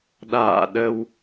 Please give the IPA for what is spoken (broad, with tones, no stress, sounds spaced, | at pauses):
ɗ a̰ː˧˨ ɗ ə˧ w